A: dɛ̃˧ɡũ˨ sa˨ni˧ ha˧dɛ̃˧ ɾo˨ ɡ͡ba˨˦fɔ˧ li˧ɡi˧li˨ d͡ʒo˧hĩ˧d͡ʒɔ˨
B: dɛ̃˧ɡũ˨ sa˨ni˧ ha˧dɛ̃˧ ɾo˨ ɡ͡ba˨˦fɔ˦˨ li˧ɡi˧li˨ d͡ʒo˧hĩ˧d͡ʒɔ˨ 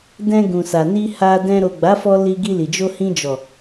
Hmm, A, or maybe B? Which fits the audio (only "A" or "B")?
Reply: A